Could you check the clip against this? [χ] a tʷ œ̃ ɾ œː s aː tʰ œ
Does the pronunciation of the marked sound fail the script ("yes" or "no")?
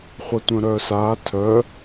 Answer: yes